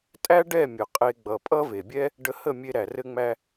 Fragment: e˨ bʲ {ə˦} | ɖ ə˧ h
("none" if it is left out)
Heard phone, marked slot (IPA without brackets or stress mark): ɛ˦